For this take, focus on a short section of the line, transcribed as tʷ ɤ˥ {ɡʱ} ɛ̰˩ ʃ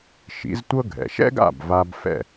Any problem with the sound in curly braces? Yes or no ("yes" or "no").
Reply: no